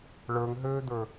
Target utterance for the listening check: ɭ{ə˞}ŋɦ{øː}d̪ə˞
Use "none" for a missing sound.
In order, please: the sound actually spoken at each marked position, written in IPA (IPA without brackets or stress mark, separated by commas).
ə˞, øː